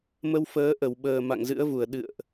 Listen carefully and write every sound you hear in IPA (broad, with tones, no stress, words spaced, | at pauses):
mə˧wfəː˨˦ʔə˧˩wɓəː˨˩ ma̰˧˨ŋzɨ̰˧˥ə̯vu˧˩ə̯ ɗɨ̰˧˨ə̯ʔ